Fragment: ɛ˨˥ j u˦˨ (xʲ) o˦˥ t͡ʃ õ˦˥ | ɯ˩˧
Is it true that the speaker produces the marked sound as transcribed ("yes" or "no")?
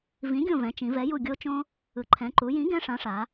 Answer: no